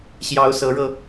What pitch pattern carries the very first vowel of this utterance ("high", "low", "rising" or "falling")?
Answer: rising